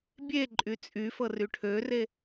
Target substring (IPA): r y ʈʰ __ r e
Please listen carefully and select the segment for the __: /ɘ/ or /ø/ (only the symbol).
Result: ø